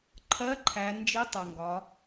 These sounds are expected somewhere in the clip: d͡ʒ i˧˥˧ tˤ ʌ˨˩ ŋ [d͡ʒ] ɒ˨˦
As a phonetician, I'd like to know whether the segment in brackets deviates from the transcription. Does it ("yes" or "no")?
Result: yes